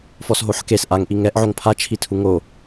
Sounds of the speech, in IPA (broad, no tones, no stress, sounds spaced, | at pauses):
f ɔ s ɦ o ħ k e s ʔ a ŋ ʔ i ŋ ɛ ʔ ʕ o ŋ pʰ a t͡ʃʰ i tʰ u ŋ o